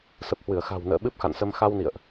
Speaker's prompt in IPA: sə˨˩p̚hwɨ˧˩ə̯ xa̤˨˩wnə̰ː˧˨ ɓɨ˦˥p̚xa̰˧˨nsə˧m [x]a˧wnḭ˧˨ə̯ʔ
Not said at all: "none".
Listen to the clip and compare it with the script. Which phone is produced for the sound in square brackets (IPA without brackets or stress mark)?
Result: x